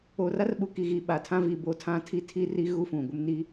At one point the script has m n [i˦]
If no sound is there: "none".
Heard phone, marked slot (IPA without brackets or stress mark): i˦